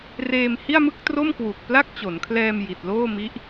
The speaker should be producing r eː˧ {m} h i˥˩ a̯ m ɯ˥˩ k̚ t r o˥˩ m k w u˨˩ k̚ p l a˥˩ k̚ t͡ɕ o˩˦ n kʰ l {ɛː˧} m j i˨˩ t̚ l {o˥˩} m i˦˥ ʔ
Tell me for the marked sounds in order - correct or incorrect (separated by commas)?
correct, correct, incorrect